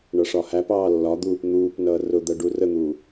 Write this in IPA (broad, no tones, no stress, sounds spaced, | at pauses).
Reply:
ɳ ʌ ʂ ɒ h æ p ɑː lː ɒ d̪ uː p n̪ uː p n ʌː r ʊ d̪ ɜ ɖ u r ə n̪ uː